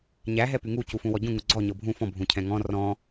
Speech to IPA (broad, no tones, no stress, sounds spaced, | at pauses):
ɲ æ ɦ ɛ p y ŋ u c u f ũ w ɔ ɟ ũ ŋ u ɡ͡ǀ ɔ ɲ ɤ bʱ ũ f ɔ̃ bʱ ũ cʰ ɛ̃ ŋ ɔ̃ r ɔ̃